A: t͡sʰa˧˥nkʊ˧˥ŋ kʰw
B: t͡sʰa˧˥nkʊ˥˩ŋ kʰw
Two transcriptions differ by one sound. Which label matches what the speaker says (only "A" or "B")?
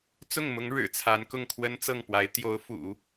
B